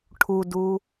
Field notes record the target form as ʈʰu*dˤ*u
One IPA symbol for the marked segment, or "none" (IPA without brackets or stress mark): d